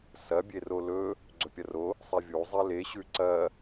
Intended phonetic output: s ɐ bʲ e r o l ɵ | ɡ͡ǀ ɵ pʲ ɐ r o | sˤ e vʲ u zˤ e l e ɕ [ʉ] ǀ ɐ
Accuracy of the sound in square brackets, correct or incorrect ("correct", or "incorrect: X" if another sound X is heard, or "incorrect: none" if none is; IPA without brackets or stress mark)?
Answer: correct